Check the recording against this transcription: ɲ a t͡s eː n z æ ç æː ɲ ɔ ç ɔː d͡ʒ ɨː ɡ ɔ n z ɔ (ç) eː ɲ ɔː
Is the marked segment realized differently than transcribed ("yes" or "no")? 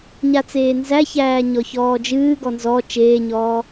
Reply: yes